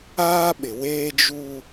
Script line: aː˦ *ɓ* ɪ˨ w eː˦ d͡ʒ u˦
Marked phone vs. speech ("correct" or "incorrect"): correct